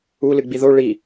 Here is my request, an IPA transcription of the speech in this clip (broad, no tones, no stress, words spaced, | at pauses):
u lɨɡ͡biðo ɭi